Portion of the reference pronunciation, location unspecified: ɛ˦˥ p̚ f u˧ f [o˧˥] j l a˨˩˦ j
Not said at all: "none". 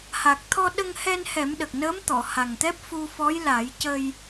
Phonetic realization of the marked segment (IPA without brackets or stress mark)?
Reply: ɔ˧˥